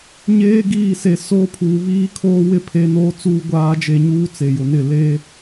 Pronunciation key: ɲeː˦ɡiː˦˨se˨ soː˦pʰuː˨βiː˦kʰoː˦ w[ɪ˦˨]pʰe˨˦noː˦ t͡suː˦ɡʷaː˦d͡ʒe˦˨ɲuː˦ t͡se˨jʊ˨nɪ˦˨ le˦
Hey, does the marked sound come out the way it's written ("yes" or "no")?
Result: yes